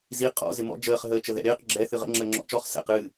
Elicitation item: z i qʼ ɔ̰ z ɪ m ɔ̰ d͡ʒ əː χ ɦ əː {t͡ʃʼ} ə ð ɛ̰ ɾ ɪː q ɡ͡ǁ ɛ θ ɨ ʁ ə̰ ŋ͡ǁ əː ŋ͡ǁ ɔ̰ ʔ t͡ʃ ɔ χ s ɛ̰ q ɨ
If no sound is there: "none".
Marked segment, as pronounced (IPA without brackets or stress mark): t͡ʃ